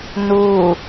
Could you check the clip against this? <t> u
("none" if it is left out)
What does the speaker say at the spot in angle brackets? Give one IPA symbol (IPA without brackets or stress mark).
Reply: n